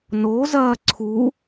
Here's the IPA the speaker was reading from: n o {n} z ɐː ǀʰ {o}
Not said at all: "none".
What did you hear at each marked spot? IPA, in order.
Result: none, u

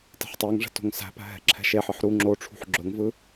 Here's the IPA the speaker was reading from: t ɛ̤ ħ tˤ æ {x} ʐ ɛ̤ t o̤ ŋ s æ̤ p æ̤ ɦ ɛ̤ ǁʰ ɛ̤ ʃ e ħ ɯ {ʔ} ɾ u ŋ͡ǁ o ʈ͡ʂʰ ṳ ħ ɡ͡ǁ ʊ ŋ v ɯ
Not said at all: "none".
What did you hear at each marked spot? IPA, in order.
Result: ŋ, ħ

